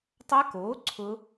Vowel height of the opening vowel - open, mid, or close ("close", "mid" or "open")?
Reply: open